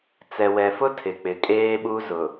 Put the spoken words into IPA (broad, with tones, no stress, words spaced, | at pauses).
t͡sɛ˨wɛ˨fʊ˦ tʰɪ˨k͡pɪ˨kʼeː˦ɓu˦ zʊ˨